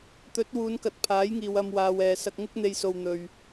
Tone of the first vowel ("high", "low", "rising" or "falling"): rising